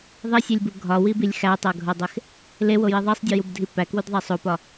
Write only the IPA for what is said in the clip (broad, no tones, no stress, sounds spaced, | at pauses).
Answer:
ðˤ i sʲ e lʲ b u ɡʱ ɒ w i b i lʲ x æ tˤ æ ɡʱ o dˤ e x | l e w o j i ðˤ e sˤ dʲ o j u b dʱ i p æ k w u d ðˤ æ sˤ o p ɒ